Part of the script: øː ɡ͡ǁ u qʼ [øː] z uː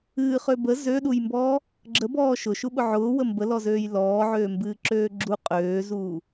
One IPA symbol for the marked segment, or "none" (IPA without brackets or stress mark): øː